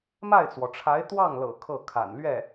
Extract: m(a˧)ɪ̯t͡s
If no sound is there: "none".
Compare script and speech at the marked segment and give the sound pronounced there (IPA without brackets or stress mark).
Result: a˥˩